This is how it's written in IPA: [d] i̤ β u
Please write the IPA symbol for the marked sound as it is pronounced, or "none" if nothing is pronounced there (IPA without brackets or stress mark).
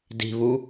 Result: d